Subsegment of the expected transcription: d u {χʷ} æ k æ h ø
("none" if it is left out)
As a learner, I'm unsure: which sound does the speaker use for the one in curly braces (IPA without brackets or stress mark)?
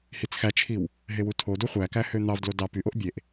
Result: χʷ